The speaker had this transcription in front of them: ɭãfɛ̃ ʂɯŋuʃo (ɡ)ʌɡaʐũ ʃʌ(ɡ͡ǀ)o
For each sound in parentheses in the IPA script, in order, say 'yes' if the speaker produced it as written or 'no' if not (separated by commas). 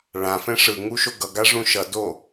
yes, no